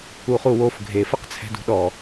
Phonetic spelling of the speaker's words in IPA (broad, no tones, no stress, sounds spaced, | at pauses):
u χ u w o f ɡʱ e f ə q t͡sʰ ɛ̤ d ṳ ɗ ɔ